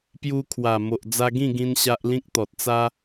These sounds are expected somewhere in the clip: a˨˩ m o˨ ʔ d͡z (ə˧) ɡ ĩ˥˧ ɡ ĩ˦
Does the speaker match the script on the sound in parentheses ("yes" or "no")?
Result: no